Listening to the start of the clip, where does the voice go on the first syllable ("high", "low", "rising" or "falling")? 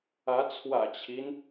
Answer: rising